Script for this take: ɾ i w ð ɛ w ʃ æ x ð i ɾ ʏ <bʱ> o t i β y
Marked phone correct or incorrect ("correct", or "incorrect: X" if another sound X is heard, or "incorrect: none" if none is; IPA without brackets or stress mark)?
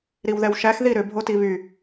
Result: correct